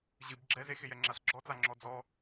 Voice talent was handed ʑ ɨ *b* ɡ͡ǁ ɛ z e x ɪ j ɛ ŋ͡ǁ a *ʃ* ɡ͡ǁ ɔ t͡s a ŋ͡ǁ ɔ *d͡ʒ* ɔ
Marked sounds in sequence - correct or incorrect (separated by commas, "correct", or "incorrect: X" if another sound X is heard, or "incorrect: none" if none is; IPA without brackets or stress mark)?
correct, incorrect: s, incorrect: d͡z